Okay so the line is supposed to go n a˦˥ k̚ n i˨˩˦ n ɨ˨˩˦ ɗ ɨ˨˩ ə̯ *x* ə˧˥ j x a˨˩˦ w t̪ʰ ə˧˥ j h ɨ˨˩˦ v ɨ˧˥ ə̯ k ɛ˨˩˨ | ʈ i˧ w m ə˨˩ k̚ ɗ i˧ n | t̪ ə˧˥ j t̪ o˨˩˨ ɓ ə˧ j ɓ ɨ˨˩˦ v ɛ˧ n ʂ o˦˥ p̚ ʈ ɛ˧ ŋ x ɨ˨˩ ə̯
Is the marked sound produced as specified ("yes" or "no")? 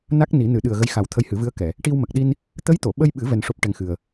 no